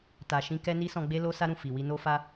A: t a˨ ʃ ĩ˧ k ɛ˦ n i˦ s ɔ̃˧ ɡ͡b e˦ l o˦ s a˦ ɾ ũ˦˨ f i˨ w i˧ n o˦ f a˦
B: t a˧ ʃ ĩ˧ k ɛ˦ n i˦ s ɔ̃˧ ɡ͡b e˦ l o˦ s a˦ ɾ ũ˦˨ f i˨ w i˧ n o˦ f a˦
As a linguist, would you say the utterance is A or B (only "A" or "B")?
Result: A